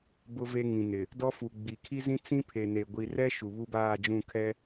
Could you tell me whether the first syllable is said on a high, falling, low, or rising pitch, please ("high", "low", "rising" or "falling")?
high